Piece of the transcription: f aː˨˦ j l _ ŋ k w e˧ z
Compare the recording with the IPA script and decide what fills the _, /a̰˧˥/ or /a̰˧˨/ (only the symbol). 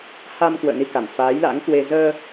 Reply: a̰˧˥